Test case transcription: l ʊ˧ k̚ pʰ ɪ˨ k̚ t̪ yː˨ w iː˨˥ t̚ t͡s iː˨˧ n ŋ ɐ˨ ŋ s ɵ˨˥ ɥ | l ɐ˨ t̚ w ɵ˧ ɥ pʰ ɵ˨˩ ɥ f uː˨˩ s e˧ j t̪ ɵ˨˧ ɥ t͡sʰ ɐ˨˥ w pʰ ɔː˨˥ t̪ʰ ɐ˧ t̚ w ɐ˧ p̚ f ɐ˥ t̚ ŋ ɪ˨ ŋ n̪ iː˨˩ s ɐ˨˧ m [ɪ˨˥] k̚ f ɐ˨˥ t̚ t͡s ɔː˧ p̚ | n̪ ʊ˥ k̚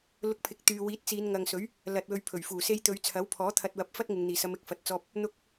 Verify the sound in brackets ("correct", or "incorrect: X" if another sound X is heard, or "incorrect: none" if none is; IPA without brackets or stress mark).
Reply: incorrect: ɪ˨